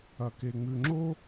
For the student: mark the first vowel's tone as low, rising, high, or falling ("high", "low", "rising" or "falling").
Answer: low